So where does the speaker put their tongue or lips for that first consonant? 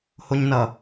throat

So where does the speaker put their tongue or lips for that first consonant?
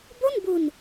lips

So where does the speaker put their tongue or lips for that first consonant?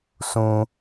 tongue tip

